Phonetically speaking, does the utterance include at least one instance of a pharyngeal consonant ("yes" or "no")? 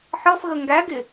yes